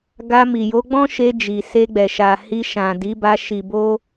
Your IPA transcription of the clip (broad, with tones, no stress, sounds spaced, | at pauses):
ɡ a˧ m i˨ j o˨˦ ɡ͡b ɔ̃˦ ʃ e˧ d͡ʒ i˨ s e˧ ɡ͡b ɛ˨ ʃ a˨ h i˧ ʃ ã˨ d i˨˦ b a˧ ʃ i˨ b o˧